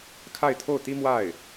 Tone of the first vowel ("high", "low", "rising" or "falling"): falling